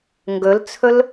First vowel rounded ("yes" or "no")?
yes